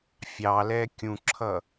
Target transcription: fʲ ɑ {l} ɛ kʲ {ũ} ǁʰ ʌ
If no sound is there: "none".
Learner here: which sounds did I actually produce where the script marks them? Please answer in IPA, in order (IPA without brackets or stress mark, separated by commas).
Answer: l, ũ